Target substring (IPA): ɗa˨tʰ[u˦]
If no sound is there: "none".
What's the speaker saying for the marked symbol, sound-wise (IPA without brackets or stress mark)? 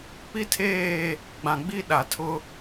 ʊ˦